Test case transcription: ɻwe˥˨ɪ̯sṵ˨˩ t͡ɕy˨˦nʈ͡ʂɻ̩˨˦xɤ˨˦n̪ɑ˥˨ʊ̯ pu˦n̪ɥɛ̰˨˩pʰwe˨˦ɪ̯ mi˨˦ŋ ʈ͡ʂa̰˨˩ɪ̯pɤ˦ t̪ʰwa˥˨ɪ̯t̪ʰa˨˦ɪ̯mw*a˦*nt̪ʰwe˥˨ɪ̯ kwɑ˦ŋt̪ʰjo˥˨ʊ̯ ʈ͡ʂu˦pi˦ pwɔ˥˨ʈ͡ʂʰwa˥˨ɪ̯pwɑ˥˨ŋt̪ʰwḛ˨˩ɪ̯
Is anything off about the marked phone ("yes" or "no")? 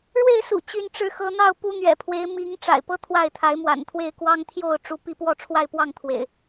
yes